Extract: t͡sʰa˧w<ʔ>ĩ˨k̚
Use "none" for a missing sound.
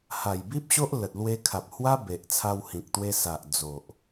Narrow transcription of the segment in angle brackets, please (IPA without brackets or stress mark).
h